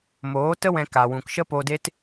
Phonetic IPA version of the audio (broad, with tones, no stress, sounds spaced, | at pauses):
m oː˨˦ t ə˦ w ɛ̃˦ k a˧ w ũ˧ k ʃ ə˦ p o˧ d e˦ t